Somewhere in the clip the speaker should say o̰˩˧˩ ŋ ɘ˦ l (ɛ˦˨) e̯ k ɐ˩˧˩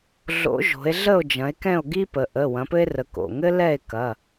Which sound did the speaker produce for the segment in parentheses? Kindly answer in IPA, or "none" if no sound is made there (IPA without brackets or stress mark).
ɛ˦˨